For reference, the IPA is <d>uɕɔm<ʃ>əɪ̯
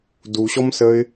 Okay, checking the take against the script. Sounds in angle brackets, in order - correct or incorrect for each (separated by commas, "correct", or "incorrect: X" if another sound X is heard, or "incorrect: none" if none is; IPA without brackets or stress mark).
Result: correct, incorrect: s